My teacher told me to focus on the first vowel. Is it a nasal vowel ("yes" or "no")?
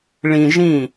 yes